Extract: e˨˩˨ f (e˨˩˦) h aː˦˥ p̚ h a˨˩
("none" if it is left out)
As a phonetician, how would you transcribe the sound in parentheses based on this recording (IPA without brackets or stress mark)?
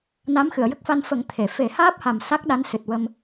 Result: e˨˩˦